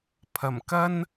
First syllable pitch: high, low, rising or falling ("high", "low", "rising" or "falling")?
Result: low